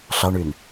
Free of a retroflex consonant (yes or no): no